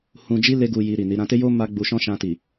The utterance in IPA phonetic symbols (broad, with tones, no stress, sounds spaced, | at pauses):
h ũ˧ d͡ʒ i˦ l e˦ ɡ u˧ j i˧ ɾ i˨ n i˨˦ ɾ ã˧ t e˦ j o˦ m a˦ ɡ͡b u˧ ʃ ɔ̃˦ ʃ ã˧ t i˨